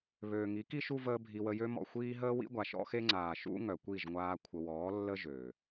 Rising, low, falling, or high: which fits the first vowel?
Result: low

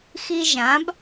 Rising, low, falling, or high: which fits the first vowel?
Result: high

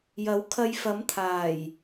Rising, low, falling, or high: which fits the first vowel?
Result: rising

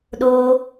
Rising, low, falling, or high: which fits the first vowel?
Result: high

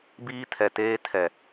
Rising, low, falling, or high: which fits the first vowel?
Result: high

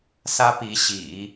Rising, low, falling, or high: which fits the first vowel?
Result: high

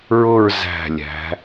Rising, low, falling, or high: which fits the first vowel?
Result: falling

